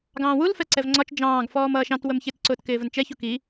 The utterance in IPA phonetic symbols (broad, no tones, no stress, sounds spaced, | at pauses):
ɡ ɑ̃ː w u l f ɛ ǀ ɛ v ŋ͡ǀ ɒ t͡ʃ d͡ʒ ɑ̃ː ɡ f ɔː m ʌː ʃ ɑ̃ t w ə m ç ɪ t ǀ ʊː t k ɪː v ə n t͡ʃ ɛ ç u k i